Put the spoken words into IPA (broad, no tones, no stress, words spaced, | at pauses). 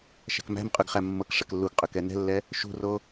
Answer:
ʃæ̤kmæ̤mqʼøɡ χæmːɤkʂɛk lːuɡqʼøk ɛnɛ̤lːɛ | ʃṳro